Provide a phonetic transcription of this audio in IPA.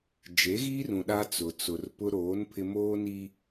d͡ʒ e˨˦ ɣ iː˦ r ũ˨ ɗ a˦ t͡s ʊ˨ t͡s ʊ˨ r p ʊ˦ ɾ oː˨˦ n pʰ ɪ˦ m oː˦ n iː˦

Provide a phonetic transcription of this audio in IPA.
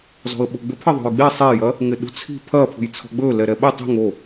z ɔ̤ ə̯ ɓ o̤ ɡ͡b ʏ pʰ ɐ ðˤ ṳ j ɡ͡b e sˤ e j ɐ | ŋ ɪ ɗ ṳ t͡sʰ i̤ pʰ ɐ pʰ ṳ j t͡sʰ ɔ̤ ɡ͡b ɵ l ɛ ɾ ɛ ɓ ɪ tˤ i̤ ŋ o

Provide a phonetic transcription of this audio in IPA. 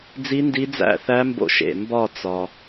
d͡z i˦˥ n d i˦˥ d͡z æ̰˥˧ θ æ˦˥ m b o̰˧ ʃ ḛ˨˩ m b ɒ˥˧ t͡s ɒ˧

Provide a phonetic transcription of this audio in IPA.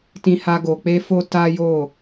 t ĩ˧ h a˧ ɡ o˨ k͡p e˧ f o˧ t a˦ j o˦˨

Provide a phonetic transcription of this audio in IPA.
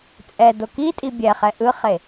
t͡sʼ ɛ d o k i tʼ i bʲ ɛ χ ɛ ʔ ɯ χ e

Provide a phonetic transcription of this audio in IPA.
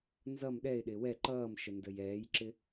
n z ʌ m ɗ ɛ ɪ̯ ɗ ɪː w ɛ ǃ ʌː m ʃ ə n d ə j ɛː j ǁ ɪ

